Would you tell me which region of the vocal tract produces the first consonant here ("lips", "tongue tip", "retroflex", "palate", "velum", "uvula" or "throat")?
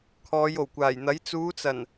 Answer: velum